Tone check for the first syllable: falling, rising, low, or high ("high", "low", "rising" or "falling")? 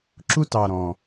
high